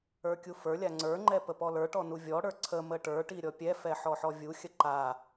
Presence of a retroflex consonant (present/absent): present